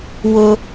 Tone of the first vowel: high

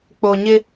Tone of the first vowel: low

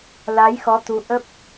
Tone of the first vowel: rising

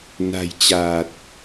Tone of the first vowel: low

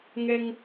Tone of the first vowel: high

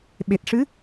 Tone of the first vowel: low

